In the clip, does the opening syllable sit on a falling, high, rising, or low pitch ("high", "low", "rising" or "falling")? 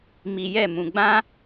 low